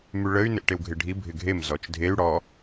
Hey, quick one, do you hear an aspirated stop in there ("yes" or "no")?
no